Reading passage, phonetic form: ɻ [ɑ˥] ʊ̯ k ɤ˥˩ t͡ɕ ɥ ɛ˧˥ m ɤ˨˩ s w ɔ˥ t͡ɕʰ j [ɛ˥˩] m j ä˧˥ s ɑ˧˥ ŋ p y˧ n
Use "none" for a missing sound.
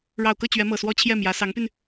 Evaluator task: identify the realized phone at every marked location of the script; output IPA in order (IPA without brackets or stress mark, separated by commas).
ɑ˨˩, ɛ˥˩